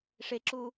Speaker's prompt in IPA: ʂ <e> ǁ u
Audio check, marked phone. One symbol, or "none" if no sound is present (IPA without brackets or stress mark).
e